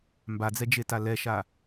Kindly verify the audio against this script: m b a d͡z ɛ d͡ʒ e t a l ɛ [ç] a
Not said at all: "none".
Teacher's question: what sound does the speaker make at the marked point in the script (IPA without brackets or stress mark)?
ʃ